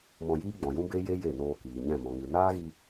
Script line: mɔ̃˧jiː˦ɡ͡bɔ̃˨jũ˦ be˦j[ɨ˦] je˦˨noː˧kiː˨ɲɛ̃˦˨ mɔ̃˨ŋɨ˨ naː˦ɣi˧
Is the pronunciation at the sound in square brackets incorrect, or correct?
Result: incorrect